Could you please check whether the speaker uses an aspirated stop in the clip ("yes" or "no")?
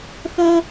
no